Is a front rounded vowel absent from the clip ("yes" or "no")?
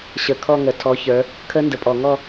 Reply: yes